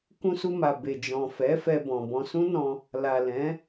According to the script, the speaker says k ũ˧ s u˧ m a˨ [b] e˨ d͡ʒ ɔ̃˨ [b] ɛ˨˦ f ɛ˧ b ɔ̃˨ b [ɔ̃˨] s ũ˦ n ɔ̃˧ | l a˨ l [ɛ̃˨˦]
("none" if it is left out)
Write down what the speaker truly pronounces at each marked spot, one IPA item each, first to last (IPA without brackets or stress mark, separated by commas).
b, f, ɔ̃˧, ɛ̃˨˦